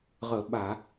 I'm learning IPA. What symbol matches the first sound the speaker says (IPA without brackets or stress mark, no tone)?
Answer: ʁ